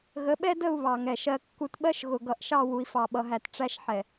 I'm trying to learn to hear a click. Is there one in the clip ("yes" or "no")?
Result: no